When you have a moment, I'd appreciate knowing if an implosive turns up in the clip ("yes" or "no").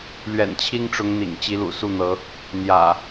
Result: no